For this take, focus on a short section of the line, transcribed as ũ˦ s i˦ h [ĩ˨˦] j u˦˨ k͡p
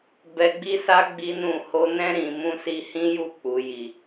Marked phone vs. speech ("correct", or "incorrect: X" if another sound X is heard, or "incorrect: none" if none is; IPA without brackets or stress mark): incorrect: ĩ˦